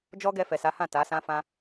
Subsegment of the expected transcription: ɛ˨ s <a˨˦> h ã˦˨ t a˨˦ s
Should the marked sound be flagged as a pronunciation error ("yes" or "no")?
no